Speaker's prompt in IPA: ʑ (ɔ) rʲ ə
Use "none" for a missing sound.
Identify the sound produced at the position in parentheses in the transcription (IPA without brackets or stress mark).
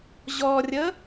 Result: ɔ